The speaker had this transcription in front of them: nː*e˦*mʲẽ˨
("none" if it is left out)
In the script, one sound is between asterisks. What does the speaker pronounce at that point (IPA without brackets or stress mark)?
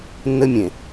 ɘ˦